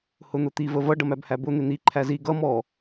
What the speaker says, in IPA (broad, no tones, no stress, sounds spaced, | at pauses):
h ʊ n̪ ʊ t̪ i v ə v ʌ ɖ ʌ m æ b h æ b ʊ n̪ ɪ n̪ i ǃʰ æ z i ɡ ʌ m ɔ